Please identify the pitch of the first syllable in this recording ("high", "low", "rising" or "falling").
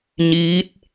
rising